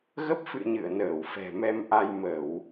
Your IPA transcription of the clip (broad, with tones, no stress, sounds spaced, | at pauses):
ɣ ə˦˥ p̚ f ɨ̰˧˨ ɲ ɨ̰˧˨ ə̯ n əː˧˩ w f ɛ̤˨˩ m ɛ˧ m ʔ a˧ j m ə˧˩˨ w